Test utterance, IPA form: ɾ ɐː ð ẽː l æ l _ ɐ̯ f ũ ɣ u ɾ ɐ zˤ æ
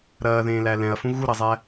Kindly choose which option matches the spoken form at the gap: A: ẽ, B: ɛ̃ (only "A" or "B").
B